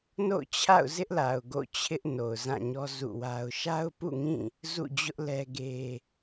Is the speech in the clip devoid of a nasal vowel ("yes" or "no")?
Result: no